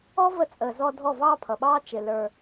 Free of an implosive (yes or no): no